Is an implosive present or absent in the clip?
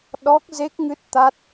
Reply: present